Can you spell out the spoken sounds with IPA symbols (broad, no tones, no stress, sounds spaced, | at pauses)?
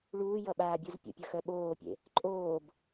ɭ uː j ʌ ɓ aː bʲ u z pʲ ə̰ pʲ ʌ x œ ɓ oː pʲ ḛ | ǃʼ oː b